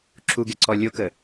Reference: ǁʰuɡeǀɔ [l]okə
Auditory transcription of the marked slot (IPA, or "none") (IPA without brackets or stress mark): lʲ